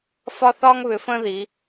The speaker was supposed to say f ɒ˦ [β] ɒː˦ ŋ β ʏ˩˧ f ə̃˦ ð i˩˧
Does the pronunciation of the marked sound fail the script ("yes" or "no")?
yes